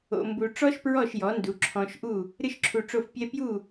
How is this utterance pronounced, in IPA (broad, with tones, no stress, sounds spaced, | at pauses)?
o̰˧ m b u˧ ʈ͡ʂ ɔ˥ ʃ p ɹ ɔ˥˩ ʃ j ɔ˩˥ n d u˩˥ ǁʰ ɔ̃˧ ʃ ʔ u˥˩ | ɾ ɨ˥ ʃ ǁʰ u˧ ʈ͡ʂ o˥˩ f pʲ ɛ˥ p j u˥˩